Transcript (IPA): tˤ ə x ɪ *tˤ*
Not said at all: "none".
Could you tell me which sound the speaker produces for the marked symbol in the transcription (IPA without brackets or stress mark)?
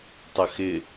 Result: none